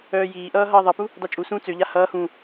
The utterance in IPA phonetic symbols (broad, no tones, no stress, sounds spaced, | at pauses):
œː j iː ʔ ʌː ɦ ʌː ðˤ ʌ p u | d ɑ t͡ʃʼ u s ũː t͡s ø ʎ a h ʌː h ũː